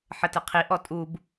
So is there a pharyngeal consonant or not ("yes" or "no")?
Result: yes